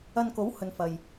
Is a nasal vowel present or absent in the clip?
absent